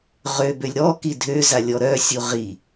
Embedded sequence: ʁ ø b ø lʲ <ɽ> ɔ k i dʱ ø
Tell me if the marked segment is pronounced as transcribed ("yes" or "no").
no